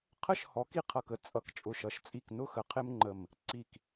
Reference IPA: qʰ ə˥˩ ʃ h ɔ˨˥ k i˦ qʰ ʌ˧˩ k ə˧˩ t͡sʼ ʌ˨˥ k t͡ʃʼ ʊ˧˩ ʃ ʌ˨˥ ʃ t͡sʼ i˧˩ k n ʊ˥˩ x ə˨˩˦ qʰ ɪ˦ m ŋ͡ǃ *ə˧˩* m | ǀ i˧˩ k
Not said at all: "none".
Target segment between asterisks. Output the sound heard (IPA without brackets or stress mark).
ə˧˩